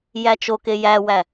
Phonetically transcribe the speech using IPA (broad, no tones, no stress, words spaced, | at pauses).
jæt͡ʃoke jæwæ